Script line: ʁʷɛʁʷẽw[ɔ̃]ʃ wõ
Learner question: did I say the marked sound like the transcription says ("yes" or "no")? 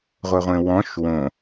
yes